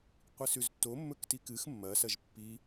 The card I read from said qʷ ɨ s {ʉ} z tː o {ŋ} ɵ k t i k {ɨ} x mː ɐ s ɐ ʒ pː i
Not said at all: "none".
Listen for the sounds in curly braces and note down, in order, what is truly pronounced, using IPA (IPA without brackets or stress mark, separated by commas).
ʉ, mː, ɨ